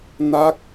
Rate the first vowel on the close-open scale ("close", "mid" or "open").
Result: open